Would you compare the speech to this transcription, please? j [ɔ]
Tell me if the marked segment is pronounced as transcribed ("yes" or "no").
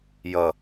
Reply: no